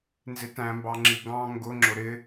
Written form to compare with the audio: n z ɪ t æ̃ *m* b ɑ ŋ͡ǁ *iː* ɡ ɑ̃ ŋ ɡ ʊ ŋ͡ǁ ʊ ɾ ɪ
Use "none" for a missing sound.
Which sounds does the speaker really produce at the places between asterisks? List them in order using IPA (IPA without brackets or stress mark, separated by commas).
m, i